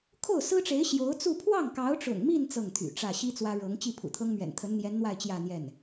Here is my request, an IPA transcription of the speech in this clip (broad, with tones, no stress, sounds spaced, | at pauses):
kʰ o˥˩ ʊ̯ s ɹ̩˥ ʈ͡ʂ e˧˥ ɪ̯ ɕ j o˧˥ ʊ̯ t͡s u˥˧ pʰ w ɑ˥˩ ŋ k ɑ˧˥ ʊ̯ ʈ͡ʂ ʊ̰˨˩ ŋ m i˥˧ n t͡s ɤ˥˩ ŋ t̪ʰ y̰˨˩ ʈ͡ʂ ä˥˩ ɕ i˥ t͡s w ä˥ ɻ ɤ˧˥ ŋ t͡ɕ i˥˩ pʰ ṵ˨˩ t̪ʰ ɤ˥ ŋ m ɥ ɛ̰˨˩ n t̪ʰ ə˧˥ n n̪ j ɛ˧˥ n n̪ w a˥˧ ɪ̯ t͡ɕ j ä˥˧ n̪ j ɛ˥˩ n